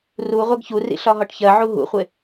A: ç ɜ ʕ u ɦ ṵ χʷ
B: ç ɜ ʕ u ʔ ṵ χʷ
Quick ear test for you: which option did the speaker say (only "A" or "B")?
A